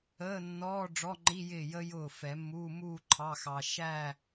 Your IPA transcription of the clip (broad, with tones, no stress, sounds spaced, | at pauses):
əː˧˥˧ nː ɔː˧˥˧ ɖ͡ʐ ɔ˧˥˧ ŋ͡ǃ i˧˥˧ j ɪː˥˩ j ə˧ j ʊː˥˩ f ɛ˨˩˦ mː uː˧˥˧ m uː˥˧ ǃʰ ɑ˧˥˧ x ɑ˧ ʃ æ˥˧